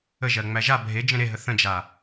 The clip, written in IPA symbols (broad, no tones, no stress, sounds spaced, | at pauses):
ə ʒ ɜ ŋ͡m æ ʒ a bʱ e d͡ʒ ə̃ ɾ e ɦ ə θ ə̃ d͡ʒ a